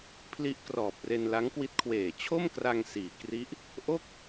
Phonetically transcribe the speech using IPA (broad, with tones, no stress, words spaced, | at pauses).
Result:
pʰli˦˥ʔkrɔː˨˩p̚re˧n la˦˥ŋkwi˦˥t̚kʰweː˨˩ t͡ɕʰo˥˩mkra˧ŋ siː˨˩kri˦˥ʔ | ʔo˥˩k̚